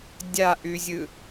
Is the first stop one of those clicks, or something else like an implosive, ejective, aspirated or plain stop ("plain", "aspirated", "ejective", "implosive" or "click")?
plain